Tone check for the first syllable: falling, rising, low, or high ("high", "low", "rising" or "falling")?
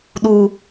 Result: low